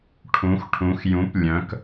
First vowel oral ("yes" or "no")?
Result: no